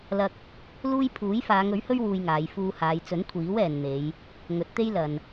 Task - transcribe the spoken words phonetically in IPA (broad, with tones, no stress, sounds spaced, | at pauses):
l ɐ˧ k̚ | l uː˥ j pʰ uː˨˥ j f aː˨˧ ŋ ɵ˨˥ ɥ h ɵ˥ ɥ w uː˧ j ŋ aː˨˧ j f uː˧ h aː˨˧ j t͡s ɵ˨˥ n kʷʰ iː˨˥ w ɛː˨ n n̪ e˨˧ j | ŋ ɵ˨˥ t̚ t̪ e˥ j l ɐ˨ n